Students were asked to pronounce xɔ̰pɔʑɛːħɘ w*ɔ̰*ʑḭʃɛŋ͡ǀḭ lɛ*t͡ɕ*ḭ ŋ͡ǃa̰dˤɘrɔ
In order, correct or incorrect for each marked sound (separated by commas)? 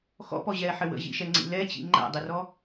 incorrect, correct